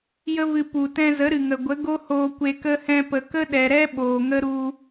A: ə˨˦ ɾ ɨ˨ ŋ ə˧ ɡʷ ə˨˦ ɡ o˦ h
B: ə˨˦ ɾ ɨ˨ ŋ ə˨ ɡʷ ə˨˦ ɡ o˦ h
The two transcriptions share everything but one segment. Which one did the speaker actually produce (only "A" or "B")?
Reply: B